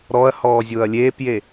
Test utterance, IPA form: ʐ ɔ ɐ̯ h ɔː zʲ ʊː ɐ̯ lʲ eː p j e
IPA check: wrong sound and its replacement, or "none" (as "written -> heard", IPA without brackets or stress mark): ʐ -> ɾ